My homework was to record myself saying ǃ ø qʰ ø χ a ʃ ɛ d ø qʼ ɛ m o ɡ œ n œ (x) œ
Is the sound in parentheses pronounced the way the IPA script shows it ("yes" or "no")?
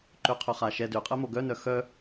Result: yes